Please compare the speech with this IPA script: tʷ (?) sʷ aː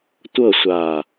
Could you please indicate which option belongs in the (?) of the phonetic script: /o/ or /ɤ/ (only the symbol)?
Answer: ɤ